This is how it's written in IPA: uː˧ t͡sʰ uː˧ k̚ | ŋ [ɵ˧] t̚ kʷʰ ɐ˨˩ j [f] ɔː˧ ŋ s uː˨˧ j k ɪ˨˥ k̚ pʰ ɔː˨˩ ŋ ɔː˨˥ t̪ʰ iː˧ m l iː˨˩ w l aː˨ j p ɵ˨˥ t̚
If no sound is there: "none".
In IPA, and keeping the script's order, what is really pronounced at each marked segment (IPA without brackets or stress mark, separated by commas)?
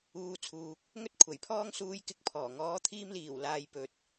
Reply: ɵ˧, pʰ